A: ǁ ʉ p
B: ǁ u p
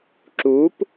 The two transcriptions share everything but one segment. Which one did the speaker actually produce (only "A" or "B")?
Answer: B